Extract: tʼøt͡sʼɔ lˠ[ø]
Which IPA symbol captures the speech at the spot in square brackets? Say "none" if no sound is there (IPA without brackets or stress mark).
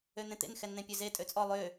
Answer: ø